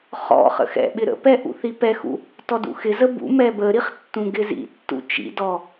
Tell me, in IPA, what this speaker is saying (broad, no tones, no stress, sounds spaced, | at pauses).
χ ɔ̰ χ ə̰ x ɛ̰ ɓ ɪ ɾ ə̰ p ɛ ʔ ṵ θ i p ɛ x ṵ | t ɔ d ṵ x ɪ z ə b ṵ m ɛ b ə ɾ i χ tː ũ ɡ ɪ z ḭ tː ṵ t͡ʃ ḭ d ɔ